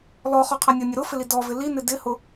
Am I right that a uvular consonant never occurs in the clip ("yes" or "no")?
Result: no